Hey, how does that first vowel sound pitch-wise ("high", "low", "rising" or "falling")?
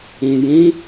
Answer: low